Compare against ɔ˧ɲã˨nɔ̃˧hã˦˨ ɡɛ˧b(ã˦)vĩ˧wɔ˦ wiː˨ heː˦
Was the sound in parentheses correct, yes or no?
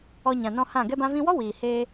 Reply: no